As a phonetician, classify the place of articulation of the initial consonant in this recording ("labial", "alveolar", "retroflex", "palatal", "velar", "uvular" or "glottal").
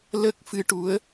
alveolar